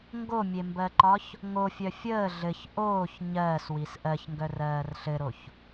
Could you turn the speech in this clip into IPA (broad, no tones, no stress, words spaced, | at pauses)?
ŋɡomʲembɜǃɒç | ŋofʲœ fʲəː ɮɘç ʔoːç ɲɜːswis ʔɜçŋɡœrɜːr ɬɘɾoç